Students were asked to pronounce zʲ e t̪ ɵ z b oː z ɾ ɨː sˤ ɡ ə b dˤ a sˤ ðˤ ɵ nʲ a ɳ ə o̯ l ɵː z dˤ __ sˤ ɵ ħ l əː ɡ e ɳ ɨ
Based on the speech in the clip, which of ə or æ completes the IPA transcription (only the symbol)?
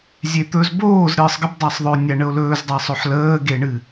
æ